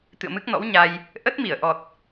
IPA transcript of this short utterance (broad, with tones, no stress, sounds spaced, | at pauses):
t̪ ɨ̰˧˨ ə̯ m ɨ˦˥ k̚ n ɔ̰˧˥ w ɲ a˧ j | ʔ ə˦˥ t̚ m i˧˩ ə̯ ʔ ɔ˨˩ t̚